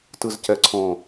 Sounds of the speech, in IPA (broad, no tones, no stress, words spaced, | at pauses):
tɯzcɛǀʰɔ̃